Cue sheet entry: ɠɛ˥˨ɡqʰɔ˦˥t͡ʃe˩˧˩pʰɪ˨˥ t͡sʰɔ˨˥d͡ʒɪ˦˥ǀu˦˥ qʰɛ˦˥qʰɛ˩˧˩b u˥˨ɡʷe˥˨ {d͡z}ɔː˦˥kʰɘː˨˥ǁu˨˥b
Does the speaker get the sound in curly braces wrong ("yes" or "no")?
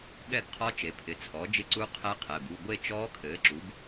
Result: yes